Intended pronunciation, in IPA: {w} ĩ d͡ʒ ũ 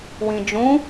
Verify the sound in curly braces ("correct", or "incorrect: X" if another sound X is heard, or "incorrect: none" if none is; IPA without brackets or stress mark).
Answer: correct